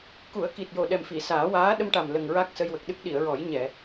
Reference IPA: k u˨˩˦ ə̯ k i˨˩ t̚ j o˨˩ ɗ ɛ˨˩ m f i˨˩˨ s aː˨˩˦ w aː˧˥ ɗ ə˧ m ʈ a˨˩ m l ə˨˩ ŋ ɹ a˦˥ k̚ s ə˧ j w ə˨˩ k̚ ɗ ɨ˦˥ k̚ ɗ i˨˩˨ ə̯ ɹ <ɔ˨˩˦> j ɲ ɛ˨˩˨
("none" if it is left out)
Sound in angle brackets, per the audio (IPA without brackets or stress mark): ɔ˨˩˦